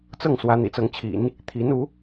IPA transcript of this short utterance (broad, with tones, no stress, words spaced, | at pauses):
t͡sɤ˥˩ŋ swä˧˥ n̪ḭ˨˩t͡sɤ˧˥ŋt͡ɕʰḭ˨˩˦n | t̪ʰi˧˥nu˧˥